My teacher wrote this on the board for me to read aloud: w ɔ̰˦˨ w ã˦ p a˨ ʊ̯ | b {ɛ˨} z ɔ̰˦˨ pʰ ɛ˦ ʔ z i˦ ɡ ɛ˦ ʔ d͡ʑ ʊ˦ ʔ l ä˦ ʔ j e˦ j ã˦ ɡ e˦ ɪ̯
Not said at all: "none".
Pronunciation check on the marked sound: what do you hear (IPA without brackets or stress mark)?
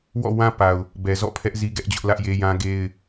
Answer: ɛ˨